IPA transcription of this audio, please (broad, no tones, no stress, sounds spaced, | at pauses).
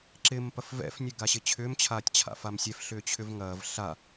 ǁ ɪ m p ɐ f v ɛ̰ f nʲ ø ɡ a ɕ ɪ t͡ɕʰ ʏː m t͡ɕʰ aː tʲ t͡ɕʰ a̰ f a m sʲ ɛ f ɬ ʏː t͡ɕʰ ʏ v ŋ ɐː v ɬ a